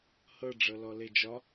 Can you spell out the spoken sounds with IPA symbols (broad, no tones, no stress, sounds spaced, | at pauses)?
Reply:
h ɤ ɖ͡ʐ ɤ l ɔ l e d͡ʒ ɒ